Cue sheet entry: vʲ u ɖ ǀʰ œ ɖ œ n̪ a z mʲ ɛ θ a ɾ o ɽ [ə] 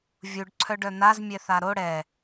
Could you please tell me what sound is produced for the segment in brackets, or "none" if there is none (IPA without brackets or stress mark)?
ɛ